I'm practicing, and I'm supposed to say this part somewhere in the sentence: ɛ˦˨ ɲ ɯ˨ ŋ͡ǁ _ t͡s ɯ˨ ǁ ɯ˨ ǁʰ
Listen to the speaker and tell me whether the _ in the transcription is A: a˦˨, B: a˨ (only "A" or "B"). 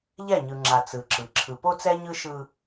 B